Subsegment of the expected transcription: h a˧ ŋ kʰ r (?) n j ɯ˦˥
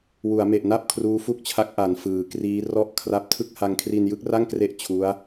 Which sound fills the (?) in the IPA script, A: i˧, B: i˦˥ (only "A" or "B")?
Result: A